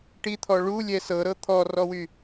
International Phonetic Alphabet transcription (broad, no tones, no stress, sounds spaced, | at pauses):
ʈ i t̪ʰ ɔ ɭ u lʲ ɛ s ɤ ɾ ɤ t̪ʰ ɔ r ɔ w y